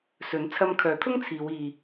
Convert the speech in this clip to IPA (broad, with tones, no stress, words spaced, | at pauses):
sɵ˨˥n t͡sʰɐ˧mkʰœː˨˥t̪ʰʊ˥ŋt͡sʰiː˨˧w iː˧